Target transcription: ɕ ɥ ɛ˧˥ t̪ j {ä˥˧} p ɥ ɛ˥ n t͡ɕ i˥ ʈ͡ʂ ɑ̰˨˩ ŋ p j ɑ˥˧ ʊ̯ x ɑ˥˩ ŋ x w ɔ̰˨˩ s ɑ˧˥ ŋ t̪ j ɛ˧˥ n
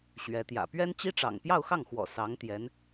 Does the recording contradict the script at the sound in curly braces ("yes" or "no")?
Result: yes